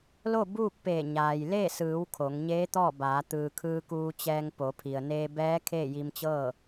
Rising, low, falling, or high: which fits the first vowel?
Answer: falling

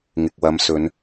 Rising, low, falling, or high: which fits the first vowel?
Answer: low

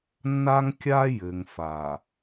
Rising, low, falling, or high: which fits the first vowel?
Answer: high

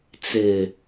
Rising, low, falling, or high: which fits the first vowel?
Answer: low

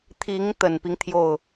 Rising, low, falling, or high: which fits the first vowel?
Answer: rising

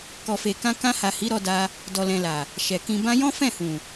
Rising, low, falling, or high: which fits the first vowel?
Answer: low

